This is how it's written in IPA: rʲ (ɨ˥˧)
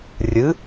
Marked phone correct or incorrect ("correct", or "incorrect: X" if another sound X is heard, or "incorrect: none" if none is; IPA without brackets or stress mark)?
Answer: incorrect: ɨ˨˥